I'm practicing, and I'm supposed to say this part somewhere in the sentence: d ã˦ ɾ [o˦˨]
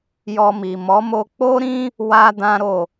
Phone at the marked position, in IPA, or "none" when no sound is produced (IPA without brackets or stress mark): o˦˨